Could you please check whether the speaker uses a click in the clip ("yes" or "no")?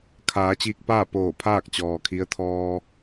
no